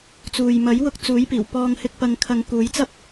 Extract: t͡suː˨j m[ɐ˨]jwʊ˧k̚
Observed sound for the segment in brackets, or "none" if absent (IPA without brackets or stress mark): ɐ˨˥